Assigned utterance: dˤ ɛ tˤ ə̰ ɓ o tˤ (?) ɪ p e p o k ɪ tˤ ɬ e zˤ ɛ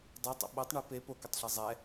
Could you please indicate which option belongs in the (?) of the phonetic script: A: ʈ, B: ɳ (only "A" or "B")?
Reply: B